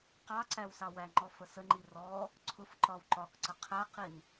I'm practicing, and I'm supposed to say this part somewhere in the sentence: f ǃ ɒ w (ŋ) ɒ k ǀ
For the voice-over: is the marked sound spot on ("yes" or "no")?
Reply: no